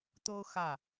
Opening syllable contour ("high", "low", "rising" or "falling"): high